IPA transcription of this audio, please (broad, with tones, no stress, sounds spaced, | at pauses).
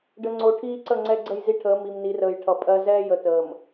ɖ ə˨ ŋ͡ǀ o˨ ʈʰ iː˦ ǀ ə˦˨ ŋ͡ǀ ɛ˦ ɡ͡ǀ ə˦˨ j z i˦ ʈʰ əː˨˦ m i˨ m n i˨˦ r əː˨ j ʈʰ ʌ˨ pʼ ɜ˦ z ɛː˦ j ə˨ t əː˨ m